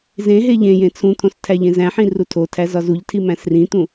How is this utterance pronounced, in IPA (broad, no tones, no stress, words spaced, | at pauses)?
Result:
zẽ ɦeʎẽjẽ t͡sʰũt̪ʰõs tʰæʎẽzæ̃ħĩ rutʰotʰæ zɒzuʎtʰi mæ̃srĩt̪ũ